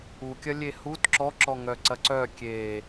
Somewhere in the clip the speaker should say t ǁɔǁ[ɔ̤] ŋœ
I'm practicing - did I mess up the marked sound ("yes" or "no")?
yes